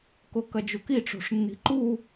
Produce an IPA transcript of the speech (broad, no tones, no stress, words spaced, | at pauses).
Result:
kokɐd͡ʒuki ʈ͡ʂo̤ʂnːi̤ǃu